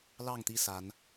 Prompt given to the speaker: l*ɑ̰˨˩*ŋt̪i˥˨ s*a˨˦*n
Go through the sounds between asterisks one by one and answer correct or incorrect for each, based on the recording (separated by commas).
incorrect, correct